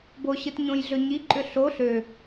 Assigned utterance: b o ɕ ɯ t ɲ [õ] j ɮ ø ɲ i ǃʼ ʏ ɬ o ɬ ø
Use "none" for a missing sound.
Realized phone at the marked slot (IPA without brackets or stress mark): õ